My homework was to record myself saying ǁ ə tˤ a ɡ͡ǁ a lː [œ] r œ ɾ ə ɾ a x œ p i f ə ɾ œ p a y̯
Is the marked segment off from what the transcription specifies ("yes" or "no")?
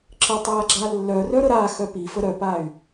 no